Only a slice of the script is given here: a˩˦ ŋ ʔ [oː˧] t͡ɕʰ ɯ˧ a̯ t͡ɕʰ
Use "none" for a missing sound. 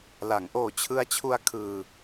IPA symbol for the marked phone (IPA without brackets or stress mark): oː˨˩